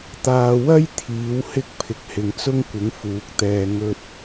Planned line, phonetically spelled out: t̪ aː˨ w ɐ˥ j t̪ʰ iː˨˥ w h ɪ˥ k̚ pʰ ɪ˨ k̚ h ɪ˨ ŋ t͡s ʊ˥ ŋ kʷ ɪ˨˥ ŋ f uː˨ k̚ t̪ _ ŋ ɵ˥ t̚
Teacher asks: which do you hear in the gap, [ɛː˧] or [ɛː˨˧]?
ɛː˧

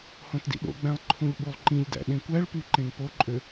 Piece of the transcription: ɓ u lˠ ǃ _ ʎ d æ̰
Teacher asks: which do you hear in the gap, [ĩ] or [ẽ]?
ĩ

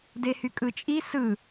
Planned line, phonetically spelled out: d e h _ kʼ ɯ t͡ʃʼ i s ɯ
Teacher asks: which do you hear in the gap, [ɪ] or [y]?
y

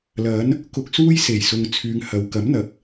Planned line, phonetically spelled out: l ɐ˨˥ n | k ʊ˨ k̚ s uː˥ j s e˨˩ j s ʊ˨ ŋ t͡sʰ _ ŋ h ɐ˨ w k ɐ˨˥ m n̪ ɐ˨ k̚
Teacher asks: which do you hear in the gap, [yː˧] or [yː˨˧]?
yː˨˧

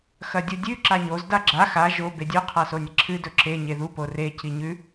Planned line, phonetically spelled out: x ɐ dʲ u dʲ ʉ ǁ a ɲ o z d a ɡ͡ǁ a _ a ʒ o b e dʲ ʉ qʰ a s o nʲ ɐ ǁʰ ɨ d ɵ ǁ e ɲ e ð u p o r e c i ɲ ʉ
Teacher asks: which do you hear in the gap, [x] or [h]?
x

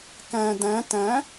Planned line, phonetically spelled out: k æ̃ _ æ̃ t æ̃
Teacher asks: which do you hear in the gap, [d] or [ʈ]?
d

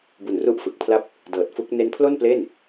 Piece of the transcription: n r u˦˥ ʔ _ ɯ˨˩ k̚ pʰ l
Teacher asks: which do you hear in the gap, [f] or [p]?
f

